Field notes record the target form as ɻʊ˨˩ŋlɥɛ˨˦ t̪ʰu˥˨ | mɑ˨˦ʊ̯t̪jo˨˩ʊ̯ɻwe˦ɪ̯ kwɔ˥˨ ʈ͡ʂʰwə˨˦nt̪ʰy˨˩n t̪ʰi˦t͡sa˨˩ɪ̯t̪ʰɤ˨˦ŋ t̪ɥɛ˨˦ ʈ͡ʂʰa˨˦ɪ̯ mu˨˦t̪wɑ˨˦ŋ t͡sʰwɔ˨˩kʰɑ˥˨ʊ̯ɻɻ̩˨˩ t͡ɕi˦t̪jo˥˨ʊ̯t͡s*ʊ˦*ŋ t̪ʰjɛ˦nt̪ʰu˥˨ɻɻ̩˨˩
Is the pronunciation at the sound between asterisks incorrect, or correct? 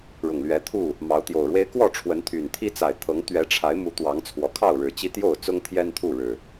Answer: correct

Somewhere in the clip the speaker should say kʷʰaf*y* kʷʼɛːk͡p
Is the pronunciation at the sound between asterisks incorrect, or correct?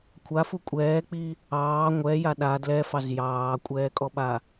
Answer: incorrect: u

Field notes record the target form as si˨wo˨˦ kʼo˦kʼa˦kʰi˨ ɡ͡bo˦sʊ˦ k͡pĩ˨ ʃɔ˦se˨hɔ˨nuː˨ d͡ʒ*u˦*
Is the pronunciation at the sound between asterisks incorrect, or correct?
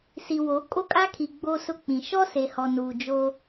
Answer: incorrect: o˦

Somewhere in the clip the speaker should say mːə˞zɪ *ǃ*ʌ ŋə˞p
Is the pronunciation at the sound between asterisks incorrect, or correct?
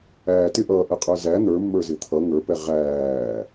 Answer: incorrect: t̪ʰ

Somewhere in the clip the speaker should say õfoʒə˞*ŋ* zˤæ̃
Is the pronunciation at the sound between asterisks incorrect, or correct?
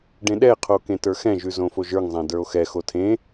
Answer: correct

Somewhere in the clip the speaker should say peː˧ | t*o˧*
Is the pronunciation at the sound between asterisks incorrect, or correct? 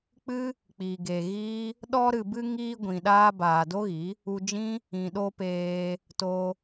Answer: correct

